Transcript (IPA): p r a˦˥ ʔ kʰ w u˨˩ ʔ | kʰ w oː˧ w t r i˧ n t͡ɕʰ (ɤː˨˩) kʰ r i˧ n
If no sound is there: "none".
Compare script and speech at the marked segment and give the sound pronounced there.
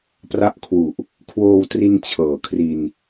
ɤː˨˩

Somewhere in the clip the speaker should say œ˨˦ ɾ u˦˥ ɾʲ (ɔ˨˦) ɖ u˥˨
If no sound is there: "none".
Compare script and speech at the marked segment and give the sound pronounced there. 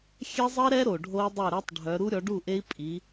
ɔ˨˦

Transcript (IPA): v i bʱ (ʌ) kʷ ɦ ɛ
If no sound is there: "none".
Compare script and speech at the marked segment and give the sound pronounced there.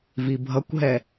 ʌ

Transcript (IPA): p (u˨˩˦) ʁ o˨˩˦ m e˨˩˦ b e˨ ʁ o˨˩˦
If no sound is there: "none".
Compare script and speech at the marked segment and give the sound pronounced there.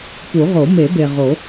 u˨˩˦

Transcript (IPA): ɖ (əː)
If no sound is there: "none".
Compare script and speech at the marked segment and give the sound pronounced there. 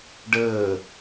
əː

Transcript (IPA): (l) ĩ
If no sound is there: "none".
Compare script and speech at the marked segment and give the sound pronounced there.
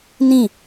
n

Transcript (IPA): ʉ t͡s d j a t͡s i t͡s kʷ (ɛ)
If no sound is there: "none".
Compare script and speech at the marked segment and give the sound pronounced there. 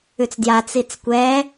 ɛ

